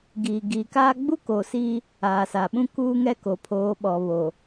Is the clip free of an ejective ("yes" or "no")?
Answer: yes